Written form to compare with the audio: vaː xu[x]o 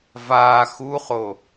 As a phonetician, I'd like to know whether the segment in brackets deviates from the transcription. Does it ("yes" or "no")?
yes